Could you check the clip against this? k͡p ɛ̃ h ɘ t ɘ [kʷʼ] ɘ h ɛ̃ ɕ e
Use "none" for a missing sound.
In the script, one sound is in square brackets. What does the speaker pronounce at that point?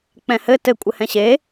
kʷʼ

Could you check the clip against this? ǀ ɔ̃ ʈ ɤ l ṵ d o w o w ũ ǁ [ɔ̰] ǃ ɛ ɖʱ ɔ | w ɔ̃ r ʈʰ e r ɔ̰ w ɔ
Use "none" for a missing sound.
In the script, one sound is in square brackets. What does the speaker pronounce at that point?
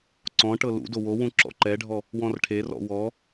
ɔ̰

